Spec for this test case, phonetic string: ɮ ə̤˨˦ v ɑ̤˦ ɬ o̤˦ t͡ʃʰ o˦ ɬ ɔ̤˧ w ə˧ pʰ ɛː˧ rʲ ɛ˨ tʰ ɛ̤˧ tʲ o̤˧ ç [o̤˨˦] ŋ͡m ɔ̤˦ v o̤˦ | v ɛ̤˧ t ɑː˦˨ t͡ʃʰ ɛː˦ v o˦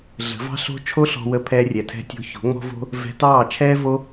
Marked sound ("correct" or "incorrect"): correct